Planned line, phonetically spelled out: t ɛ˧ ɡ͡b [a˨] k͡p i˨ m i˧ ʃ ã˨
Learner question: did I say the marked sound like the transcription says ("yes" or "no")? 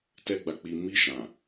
yes